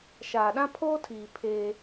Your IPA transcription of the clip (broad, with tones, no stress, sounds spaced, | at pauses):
ʃ aː˨ ɗ ã˦ pʰ oː˦ tʰ iː˨ pʰ eː˦